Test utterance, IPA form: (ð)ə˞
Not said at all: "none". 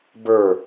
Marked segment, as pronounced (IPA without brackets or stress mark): b